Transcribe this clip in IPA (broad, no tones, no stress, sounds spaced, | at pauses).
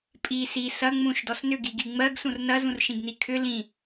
pʼ i s i s ɐ ŋ͡m ũ ʃ d ɔ s n ʏ ɡ i ɡ i ŋ͡m ɜ ɡ s ũ r n ɐ z ũ r ʃ ĩ ɡ n i kʰ ʏ l ĩ